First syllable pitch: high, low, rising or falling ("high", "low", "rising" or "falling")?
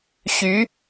rising